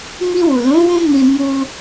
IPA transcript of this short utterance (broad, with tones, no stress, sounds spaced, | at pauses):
m i˧ w u˨ l ũ˨˦ w ũ˦ m ĩ˧ m u˧